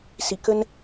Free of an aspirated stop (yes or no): yes